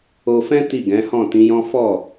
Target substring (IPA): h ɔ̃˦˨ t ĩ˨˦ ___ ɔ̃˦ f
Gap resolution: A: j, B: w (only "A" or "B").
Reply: A